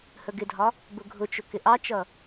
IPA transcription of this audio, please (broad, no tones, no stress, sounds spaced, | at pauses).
h ə ɡ ɪ dʱ ɒ | b ʊ ɡʱ ʊ t͡ʃ ʊ k ɪ ʔ ɑ t͡ʃ ʌ